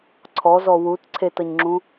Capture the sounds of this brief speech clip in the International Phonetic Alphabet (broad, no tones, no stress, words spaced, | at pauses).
ǀʰɔzɔ wut ǀʰetʌɲŋ͡ǁũ